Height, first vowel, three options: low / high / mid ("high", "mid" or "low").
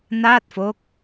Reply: low